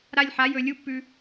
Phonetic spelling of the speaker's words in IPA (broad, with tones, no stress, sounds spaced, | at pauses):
ɾ a˧ lʲ ħ a˩˥ j ɵ˧˩ lʲ u˧˥˧ pː ʉ˧